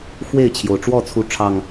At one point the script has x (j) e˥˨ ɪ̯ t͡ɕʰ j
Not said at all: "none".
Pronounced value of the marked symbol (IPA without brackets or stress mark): w